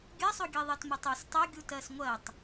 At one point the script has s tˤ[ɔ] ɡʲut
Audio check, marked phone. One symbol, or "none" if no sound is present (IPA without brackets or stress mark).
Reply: o